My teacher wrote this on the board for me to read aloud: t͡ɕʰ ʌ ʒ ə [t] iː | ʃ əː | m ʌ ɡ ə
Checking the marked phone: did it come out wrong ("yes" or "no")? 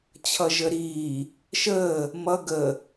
yes